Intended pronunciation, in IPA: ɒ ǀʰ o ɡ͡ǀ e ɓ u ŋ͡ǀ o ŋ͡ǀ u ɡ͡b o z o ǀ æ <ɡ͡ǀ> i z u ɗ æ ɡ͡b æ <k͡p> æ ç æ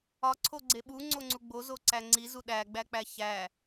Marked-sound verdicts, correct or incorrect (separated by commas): incorrect, correct